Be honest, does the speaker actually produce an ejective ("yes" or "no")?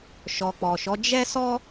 no